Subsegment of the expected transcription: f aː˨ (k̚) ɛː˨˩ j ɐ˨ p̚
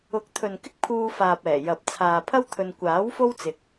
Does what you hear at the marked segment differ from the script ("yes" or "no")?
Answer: yes